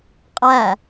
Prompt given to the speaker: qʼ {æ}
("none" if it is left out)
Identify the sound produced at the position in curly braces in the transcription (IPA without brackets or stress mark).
æ